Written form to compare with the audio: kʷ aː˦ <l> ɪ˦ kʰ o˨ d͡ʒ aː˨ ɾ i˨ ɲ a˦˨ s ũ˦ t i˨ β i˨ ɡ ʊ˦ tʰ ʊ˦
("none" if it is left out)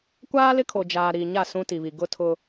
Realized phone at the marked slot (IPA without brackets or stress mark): l